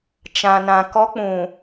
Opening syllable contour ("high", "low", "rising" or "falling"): low